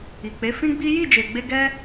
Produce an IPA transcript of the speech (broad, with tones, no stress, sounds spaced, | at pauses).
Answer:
i˨ k͡p e˨˦ f ĩ˦ ɡ͡b i˦ j i˦˨ d͡ʒ e˨ ɡ͡b e˧ ɡ ɛ˦